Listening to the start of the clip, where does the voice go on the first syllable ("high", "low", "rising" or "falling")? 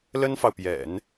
high